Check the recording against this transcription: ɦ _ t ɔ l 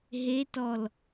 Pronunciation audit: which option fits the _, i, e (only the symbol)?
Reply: e